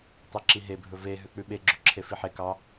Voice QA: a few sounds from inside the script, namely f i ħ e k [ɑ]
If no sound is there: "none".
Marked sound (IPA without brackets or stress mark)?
ɑ